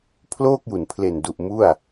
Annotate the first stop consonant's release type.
aspirated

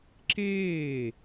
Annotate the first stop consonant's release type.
click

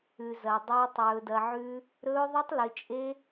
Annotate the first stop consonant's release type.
plain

